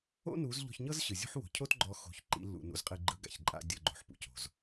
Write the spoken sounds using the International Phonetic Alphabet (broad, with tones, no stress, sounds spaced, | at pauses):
o̰˦ n u˨˦ z ʎ ɔ̤˧ ç ɲ ɤ˦ z ɕ ɯ˨ zʲ ṳ˦ ħ w o̤˨ cʰ o˦ t ɡ͡ǃ ɔ˧ x o̤˧ ç ǃ ḭ˨˦ lː ṵ˨ n ṵ˨ z qʼ i˧ ɡ͡ǃ ɯ˦ ɡ a̰˨ ç ǃʼ a̰˦ dʲ ɤ˧ ɡ͡ǃ o̤˨ ħ p ṵ˧ c o̤˨ z